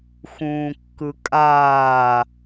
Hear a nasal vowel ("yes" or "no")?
yes